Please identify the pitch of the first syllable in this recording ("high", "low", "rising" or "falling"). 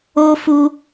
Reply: high